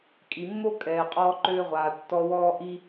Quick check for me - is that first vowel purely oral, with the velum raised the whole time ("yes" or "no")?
yes